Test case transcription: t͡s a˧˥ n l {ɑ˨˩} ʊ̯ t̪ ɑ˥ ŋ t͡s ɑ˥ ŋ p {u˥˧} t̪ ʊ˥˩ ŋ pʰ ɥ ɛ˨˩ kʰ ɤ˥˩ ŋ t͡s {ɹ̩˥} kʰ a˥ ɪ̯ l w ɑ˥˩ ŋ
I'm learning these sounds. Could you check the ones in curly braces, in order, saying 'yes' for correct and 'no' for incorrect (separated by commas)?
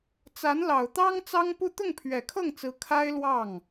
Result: yes, yes, no